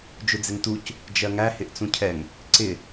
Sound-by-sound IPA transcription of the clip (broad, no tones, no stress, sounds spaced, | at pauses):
d͡ʒ ʊ d͡z ɪ ŋ t u c | d͡ʒ ɜ ŋ æ h ɪ ʔ t͡s ũ cʰ ɛ ŋ | ǀ ɪ